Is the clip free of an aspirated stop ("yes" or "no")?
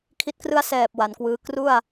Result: no